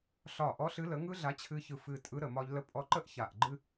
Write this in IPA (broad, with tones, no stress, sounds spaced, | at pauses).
ɬ ɒ˧˩ ʔ ɔ˨˥ ɬ ɨ˨˥ l ə˨˥ ŋ ɯ˥ ɮ a˨˥ t͡ɕʰ ɨ˧ ç ɯ˧˩ f ɨ˧˩ tʼ ɯ˨˥ ɾ ə˧˩ m ɒ˧ ʎ l ə˥ pʼ ɔ˥ ǃ ə˥ ʔ ç a˧˩ ʔ ɡ͡ǃ ɨ˥